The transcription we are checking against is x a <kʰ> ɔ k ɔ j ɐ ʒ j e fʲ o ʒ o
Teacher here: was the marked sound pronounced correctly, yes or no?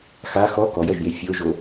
no